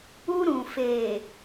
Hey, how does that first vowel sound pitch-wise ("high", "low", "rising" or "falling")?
high